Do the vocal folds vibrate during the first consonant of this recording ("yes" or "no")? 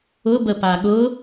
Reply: yes